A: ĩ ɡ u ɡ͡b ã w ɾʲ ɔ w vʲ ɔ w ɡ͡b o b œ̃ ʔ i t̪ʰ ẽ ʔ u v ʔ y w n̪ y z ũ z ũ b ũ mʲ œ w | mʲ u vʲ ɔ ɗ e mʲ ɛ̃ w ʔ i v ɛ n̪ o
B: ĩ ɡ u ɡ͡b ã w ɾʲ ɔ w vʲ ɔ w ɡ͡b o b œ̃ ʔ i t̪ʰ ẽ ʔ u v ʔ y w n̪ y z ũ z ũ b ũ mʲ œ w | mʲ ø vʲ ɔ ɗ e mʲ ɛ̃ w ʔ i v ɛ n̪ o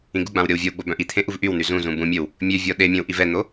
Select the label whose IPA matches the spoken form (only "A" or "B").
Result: B